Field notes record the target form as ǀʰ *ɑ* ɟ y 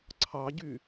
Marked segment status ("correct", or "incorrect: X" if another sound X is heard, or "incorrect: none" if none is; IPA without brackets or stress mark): correct